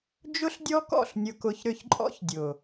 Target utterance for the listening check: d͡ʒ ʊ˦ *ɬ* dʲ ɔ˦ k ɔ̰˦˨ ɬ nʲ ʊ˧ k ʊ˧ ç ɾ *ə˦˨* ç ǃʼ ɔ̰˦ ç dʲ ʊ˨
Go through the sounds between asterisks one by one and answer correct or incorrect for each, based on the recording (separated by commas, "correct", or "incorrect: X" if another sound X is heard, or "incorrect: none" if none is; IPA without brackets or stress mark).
correct, incorrect: ʏ˦˨